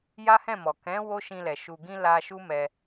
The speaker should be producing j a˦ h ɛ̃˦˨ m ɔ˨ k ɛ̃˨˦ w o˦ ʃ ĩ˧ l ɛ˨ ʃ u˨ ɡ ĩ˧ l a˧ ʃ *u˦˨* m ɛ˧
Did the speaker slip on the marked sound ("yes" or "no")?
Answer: yes